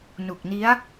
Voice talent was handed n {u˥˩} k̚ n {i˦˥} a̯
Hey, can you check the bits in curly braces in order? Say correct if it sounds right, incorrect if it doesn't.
incorrect: u˨˩, correct

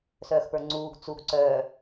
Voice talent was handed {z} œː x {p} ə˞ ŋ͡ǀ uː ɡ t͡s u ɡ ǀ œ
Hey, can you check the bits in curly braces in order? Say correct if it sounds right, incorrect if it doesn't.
incorrect: s, correct

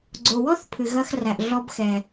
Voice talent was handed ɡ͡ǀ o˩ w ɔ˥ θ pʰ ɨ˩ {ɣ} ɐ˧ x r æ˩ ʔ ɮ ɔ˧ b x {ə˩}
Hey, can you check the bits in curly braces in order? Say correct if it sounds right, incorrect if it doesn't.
correct, incorrect: ɛ˩

